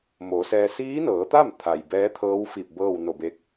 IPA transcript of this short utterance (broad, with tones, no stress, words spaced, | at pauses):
mo˩˧sɛː˧ siː˧˥nɤː˩˧t̪a˥˨mt̪ʰa˩j bɛː˧˥t̪ʰɤː˧˥wfi˧˩p̚ bɤː˥˨wno˧˩be˧k̚